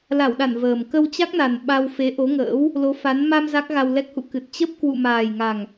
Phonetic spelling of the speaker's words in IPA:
l a˧˩ w ɗ a˧˩ n v əː˨˩ m k ə˧ w t͡ɕ a˦˥ k̚ n a˨˩ n ɓ a˧ w f e˨˦ ʔ o˨˦ ŋ ə̰ː˧˥ w | l o˨˦ f a˨˦ n m a˧ m z a˦˥ k̚ ɣ a˧ w l ɛ˦˥ k̚ h ṵ˧˨ k ɨ˨˩ t̚ t͡ɕ ə˦˥ p̚ k w ṵ˧˨ m aː˨˩ j ŋ a˨˩ ŋ

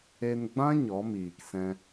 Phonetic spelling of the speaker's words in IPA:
e˧ n ɡ͡b ã˦ ɲ ɔ˨˦ m iː˨ k s ɛ̃˧

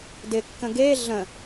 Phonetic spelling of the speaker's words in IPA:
d ɪ kː ə̃ ɡ e ɮ ə̃

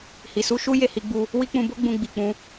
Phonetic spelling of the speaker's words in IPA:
h i˨ s u˧ ʃ u˦ j e˦˨ h i˨˦ ɡ͡b u˧ | w i˦ k͡p ũ˧ b o˦ ɡ͡b ũ˧ ɡ͡b i˨ k͡p ũ˧

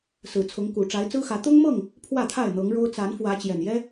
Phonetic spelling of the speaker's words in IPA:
s ɹ̩˨˩ t͡sʰ ʊ˨˦ ŋ k u˨˩ ʈ͡ʂ a˨˦ ɪ̯ t͡s ɹ̩˦ x ä˨˦ t̪ ʊ˦ ŋ m ɤ˥˨ ŋ | pʰ w ä˥˨ t̪ʰ a˥˨ ɪ̯ n̪ ɤ˨˦ ŋ ɻ o˦ ʊ̯ t͡s a˨˦ n f w ä˨˦ t͡ɕ j ɛ˨˩ n j ɛ˦

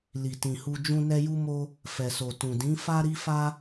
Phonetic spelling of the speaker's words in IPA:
l i˨ t ĩ˨ h u˧ d͡ʒ ũ˦ n ɛ˦ j u˦ m o˦ | f ɛ˨ s o˨ t ũ˨ d ĩ˨˦ f a˦ ɾ i˦ f a˦

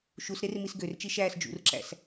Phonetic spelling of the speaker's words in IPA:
ʃ u s ɾ e r m i s ɡ ø r t͡ʃ i ʃ æː s d͡ʒ ṵ r ǁ æ̰ s

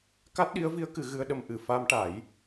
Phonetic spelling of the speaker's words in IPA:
k a˦˥ t̚ ɗ i˧˥ ə̯ v i˧˥ ə̯ k ɨ˨˩˦ ɣ ɨ˧ ə̯ ɗ ə˧ m ʔ ɨ˨˩ f a˧ m ʈ a˨˩˦ j

